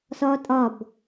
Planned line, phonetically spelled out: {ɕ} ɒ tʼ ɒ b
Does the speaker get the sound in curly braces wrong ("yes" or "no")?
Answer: yes